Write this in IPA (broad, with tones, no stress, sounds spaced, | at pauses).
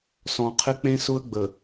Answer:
s ɔ̃˨ qʰ ɪ˦ k͡p ẽ˦ s ʊ˦ ə̯ ɡ͡b ə˨